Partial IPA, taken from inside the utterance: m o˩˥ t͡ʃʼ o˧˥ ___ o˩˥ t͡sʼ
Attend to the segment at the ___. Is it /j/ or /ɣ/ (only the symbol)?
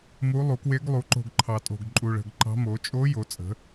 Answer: j